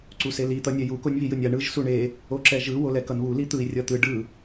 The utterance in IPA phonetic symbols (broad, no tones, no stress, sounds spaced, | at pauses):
ǀ u s e l i t̪ ʌ nʲ ɛ j u k o nʲ β i j ɯ nʲ a ɳ ɯ ʒ s u ɳ e | o ǁ ɛ ʒ ɯ w o l ɛ k ʌ n β u l i t̪ ɯ i̯ rʲ ʌ t̪ ɯ ɖ ɯ